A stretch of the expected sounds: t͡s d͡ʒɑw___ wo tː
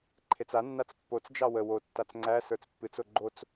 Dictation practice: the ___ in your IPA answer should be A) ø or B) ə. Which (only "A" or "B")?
B